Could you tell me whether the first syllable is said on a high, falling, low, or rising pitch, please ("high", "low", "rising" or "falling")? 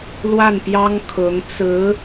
falling